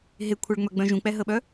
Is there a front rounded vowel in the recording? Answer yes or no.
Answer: yes